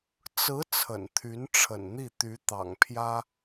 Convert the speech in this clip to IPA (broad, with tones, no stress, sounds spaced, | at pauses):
t͡s ɹ̩˧˥ t͡sʰ ə̰˨˩ n t̪ʰ y˧˥ n ʈ͡ʂʰ ə̰˨˩ n n̪ i˥˩ t̪ y˧˥ t̪ ɑ̰˨˩ ŋ pʰ j ä˥